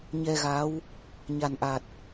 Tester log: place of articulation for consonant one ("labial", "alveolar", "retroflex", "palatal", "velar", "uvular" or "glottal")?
palatal